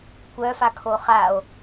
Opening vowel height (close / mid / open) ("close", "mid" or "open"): mid